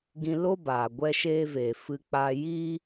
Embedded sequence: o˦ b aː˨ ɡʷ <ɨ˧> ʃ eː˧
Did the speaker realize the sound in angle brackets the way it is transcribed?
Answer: no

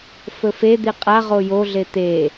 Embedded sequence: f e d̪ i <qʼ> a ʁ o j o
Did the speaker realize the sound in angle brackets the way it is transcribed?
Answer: yes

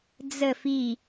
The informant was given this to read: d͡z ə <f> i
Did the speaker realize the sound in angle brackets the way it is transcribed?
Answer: yes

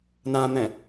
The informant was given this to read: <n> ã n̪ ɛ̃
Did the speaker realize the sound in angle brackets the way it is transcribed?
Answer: yes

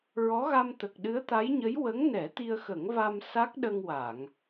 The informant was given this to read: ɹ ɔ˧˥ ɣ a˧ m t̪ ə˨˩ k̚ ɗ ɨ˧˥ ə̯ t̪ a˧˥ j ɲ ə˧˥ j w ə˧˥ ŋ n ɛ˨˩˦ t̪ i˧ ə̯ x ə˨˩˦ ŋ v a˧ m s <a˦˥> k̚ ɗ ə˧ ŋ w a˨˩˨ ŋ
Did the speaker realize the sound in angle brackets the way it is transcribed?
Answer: yes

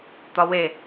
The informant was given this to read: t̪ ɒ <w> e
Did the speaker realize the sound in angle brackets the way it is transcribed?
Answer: yes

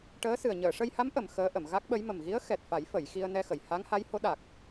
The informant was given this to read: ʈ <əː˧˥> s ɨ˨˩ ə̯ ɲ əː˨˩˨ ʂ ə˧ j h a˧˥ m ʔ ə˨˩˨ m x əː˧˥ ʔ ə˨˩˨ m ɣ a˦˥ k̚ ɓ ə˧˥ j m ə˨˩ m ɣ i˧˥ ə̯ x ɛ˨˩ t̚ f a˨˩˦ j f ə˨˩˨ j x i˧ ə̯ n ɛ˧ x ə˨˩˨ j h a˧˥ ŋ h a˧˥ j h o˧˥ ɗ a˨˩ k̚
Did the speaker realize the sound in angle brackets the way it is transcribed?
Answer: yes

